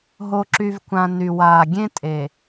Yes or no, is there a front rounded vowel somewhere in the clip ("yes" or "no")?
yes